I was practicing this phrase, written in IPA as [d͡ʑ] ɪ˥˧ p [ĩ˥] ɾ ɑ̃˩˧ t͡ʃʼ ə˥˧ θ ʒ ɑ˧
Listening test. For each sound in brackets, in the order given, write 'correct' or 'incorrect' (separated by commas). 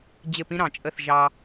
correct, correct